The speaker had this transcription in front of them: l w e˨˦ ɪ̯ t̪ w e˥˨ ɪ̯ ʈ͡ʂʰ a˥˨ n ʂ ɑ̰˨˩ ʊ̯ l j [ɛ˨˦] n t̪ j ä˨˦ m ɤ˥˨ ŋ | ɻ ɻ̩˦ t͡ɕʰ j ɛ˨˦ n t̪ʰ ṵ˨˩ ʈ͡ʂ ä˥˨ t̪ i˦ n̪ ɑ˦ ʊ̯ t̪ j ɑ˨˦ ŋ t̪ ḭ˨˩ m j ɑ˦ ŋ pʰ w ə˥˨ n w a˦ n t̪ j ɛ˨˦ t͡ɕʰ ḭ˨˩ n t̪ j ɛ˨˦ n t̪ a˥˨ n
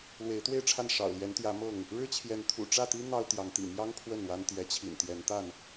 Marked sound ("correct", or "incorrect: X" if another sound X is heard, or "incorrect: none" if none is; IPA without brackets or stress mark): correct